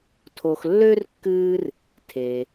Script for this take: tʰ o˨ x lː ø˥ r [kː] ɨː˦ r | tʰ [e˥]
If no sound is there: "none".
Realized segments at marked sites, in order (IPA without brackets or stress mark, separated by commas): kː, e˩